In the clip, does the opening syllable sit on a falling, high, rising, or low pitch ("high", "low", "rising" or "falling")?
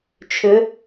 rising